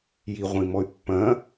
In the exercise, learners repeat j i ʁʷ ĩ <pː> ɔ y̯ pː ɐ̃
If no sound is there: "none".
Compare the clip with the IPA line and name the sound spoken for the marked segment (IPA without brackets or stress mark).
m